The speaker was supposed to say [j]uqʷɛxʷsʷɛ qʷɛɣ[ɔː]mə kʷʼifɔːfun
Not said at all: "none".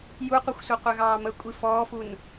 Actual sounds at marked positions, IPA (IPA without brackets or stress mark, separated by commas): j, ɑː